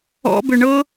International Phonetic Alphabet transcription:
ɔ̰ b ʏ ɳ ɤ

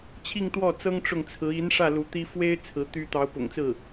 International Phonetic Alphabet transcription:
t͡ɕʰ i˥˧ ŋ t̪ w ɔ˥˩ t͡s ɤ˥ ŋ ʈ͡ʂ ʊ˥˩ ŋ t͡sʰ ɹ̩˧˥ i˧˥ n ʂ ä˥˩ l u˧˥ t̪ i˥ f w e˥ ɪ̯ t͡sʰ ɹ̩˧˥ t̪ y˥ t̪ ɑ˧˥ ʊ̯ p ʊ̰˨˩ ŋ t͡s ɹ̩˥˩

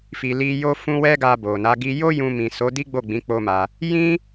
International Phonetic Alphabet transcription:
f i˨ l i˧ j o˦ f ũ˦ w ɛ˦ ɡ a˧ b o˨ n a˨˦ ɡ i˧ j o˦ j ũ˧ m ĩ˨ s o˨˦ d i˦ ɡ͡b o˦˨ ɡ͡b ĩ˨˦ k͡p o˦ m a˧ | j ĩ˦

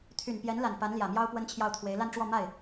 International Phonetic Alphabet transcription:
t̪ʰ y˨˩ n p j ɛ˧˥ n l a˨˩ n p a˧˥ n l j ä˨˩ m j ɑ˥ ʊ̯ p w ə˥ n t͡ɕʰ j ɑ˥˩ ʊ̯ t̪ʰ w e˧˥ ɪ̯ l a˥˧ n ʈ͡ʂ w ɔ˥˧ m a˥˩ ɪ̯

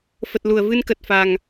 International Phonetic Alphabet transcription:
f ə˨˩ t̚ l u˧˩ ə̯ v ɨ˧ n k ə˨˩ t̚ f a˨˩ ŋ

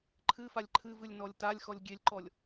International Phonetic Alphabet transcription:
ǃʰ ɨ f a lʲ ǃʰ ɨ v ɨ lʲ n ɔ lʲ t a lʲ x ɔ lʲ ɡʲ e lʲ ǃ ɔ lʲ

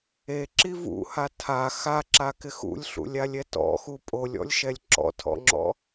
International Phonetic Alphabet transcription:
e ǁ i v ṵ h a tʰ a x a ǁ a k ɪ x ṵ lʲ ɬ ṵ lʲ a lʲ ɛ t ɔ̰ x u pʼ o lʲ ɔ̰ lʲ ʃ ɛ lʲ ǁ ɔ̰ tʰ ɔ̰ ŋ͡ǁ ɔ̰

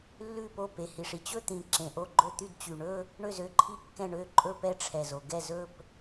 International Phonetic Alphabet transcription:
lː ʉ˥˩ p o˥˩ p e˨˩ h i˨˩ ʂ i˥˩ t͡ɕ ɵ˥˧ t̪ ĩ˨˩ ǁ ẽ˨˩ ʔ o˥˩ ɡ͡ǃ ɵ˥˩ t̪ y˥˩ d t͡ɕ y˨˩ ɳ ɵ˥˧ | ɳ ø˥˩ z ø˥˩ ǃʰ i˥˩ kː ɛ̃˥˩ ɳ ø˥˧ ǃʼ ɵ˥˧ p ɛ˥˩ ʈ͡ʂʰ ɛ˨˩ z o˨˩ ɡ ɛ˥˩ z ɵ˥˧ p

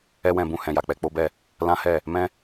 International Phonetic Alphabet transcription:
ɛ˦ w ɛ̃˧ b ũ˧ h ɛ̃˨ j a˨ k͡p ɛ˧ k͡p o˦ b ɛ˦˨ | l ã˦ h ɛ˦˨ | m ɛ̃˦

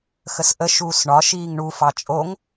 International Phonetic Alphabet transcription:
x ə s ʔ ə ʃ uː s ɳ ɒ ʃ iː ŋ ɳ u f ɑ t͡ʃʼ o ŋ

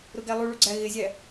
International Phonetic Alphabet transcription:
ɾ ʊ ɡ æ lˠ u ɭ u ɡ͡ǀ æ ɣ ɪ zʲ æ

